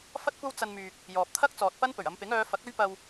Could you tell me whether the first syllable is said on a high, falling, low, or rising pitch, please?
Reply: high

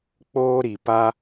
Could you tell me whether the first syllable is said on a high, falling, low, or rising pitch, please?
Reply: high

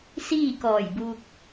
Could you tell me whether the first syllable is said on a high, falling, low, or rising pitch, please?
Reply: falling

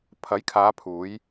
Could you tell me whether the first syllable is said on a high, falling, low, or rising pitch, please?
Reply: rising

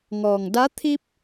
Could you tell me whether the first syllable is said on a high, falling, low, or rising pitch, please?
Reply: low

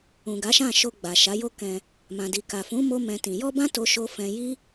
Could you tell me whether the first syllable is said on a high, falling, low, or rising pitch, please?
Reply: low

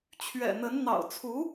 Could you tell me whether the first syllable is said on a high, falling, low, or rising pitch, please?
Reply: low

